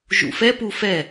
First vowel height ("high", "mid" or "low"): high